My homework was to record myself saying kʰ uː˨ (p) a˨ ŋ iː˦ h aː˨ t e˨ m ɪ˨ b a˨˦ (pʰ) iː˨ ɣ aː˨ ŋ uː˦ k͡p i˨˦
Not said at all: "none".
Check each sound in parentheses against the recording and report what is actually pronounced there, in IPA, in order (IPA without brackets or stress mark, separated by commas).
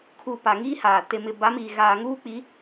p, m